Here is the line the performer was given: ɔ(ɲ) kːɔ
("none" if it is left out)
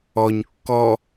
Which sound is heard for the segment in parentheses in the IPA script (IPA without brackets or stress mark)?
ɲ